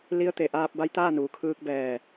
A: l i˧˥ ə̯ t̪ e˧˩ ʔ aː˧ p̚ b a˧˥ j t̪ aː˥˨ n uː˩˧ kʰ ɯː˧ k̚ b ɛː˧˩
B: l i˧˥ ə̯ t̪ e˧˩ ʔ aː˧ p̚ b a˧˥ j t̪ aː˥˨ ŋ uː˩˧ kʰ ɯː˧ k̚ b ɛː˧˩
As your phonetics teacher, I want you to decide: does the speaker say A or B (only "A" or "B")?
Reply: A